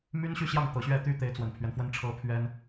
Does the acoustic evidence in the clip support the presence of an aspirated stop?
yes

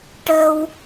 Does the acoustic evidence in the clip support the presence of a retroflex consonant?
yes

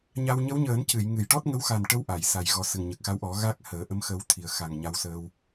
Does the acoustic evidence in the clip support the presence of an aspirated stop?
yes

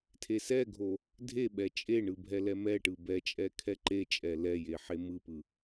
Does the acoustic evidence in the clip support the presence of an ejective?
yes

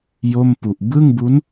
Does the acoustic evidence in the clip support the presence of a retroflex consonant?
no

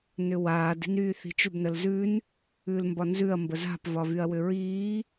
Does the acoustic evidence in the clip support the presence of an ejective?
no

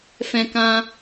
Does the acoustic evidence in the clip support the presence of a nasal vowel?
yes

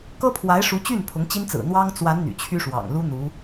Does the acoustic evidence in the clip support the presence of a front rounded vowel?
yes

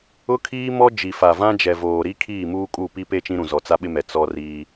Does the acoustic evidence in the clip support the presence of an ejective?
yes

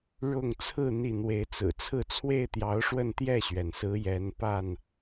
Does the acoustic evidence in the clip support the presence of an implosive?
no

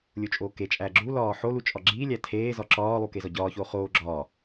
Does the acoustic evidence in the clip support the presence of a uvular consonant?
yes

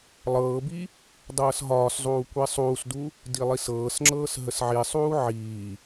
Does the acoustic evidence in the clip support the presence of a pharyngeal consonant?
yes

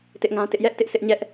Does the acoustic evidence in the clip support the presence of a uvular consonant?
no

